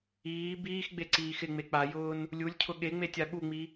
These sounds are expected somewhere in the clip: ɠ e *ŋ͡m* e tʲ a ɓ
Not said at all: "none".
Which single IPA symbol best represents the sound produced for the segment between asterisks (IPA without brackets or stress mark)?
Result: ŋ͡m